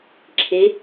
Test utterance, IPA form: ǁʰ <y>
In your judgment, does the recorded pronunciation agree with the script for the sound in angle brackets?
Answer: no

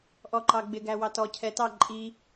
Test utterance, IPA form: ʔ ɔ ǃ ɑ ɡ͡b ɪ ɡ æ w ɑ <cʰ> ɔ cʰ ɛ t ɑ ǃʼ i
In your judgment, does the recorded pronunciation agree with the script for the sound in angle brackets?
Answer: no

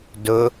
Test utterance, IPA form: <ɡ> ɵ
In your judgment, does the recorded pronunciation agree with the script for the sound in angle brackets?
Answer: no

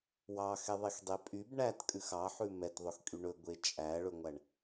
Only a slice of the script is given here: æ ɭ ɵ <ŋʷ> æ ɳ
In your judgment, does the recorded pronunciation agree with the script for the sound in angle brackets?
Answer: yes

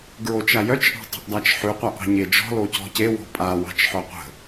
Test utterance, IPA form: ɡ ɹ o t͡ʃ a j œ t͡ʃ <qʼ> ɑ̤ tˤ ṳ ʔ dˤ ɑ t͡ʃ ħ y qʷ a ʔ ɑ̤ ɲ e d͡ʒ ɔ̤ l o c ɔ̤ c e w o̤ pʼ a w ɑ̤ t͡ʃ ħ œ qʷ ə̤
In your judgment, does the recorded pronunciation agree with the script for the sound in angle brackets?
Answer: no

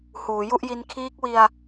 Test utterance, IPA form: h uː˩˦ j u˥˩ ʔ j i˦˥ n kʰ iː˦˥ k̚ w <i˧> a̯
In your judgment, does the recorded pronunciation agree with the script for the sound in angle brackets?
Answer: yes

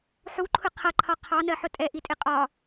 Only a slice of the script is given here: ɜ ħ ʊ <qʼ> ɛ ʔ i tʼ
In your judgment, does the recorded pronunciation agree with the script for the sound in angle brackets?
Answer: no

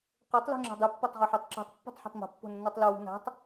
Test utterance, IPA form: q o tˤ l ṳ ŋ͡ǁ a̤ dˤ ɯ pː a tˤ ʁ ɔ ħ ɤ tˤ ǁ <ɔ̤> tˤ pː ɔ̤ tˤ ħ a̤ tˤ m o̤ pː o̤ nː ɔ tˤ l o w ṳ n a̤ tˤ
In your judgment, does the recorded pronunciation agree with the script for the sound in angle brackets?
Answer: yes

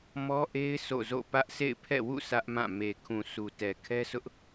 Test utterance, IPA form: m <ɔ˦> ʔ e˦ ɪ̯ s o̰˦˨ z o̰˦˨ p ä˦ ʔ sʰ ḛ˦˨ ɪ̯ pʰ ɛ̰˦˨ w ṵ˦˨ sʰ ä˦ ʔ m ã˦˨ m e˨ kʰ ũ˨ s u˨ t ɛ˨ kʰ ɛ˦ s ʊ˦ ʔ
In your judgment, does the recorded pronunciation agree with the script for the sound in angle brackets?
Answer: yes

